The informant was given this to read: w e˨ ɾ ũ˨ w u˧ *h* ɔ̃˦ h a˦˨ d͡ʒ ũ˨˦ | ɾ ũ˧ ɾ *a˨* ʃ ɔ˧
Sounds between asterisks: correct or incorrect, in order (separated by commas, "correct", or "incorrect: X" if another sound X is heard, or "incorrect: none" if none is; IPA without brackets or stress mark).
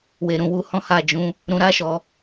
correct, incorrect: a˦